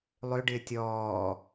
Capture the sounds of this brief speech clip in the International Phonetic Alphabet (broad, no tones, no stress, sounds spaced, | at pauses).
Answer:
lˠ ø ɖ ɪː tʲ ɔː